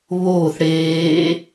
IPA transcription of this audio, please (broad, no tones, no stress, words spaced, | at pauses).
βoːθ ɽeː